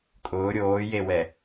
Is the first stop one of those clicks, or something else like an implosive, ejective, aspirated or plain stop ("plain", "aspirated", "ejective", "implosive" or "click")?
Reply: ejective